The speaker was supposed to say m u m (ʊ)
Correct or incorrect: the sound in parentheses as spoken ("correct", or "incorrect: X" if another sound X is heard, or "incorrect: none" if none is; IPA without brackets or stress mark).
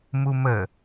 incorrect: ə